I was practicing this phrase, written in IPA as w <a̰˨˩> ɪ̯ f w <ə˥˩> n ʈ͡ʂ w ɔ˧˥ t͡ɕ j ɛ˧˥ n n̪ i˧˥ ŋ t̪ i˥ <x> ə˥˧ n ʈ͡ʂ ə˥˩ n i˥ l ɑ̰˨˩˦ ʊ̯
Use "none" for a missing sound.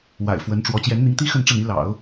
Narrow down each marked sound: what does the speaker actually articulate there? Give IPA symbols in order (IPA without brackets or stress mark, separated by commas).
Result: a̰˨˩, ə˧˥, x